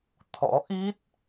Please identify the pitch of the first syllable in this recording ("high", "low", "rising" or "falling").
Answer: rising